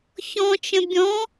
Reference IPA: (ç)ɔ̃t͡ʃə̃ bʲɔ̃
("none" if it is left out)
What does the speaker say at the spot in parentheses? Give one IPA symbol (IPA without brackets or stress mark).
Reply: ç